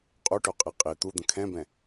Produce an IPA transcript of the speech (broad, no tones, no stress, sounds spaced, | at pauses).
qʼ u ʈ o qʼ i qʼ i t̪ u d̪ ə̃ kʰ ɛ̃ b ɛ̃